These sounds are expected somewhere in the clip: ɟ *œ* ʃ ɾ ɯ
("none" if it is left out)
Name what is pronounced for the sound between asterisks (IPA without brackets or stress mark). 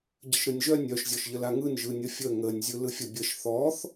ə